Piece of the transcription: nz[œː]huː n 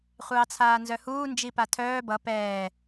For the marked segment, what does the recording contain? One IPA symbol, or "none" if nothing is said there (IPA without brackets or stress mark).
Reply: œ